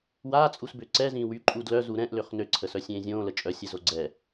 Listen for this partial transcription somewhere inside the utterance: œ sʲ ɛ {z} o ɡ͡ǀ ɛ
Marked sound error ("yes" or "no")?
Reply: no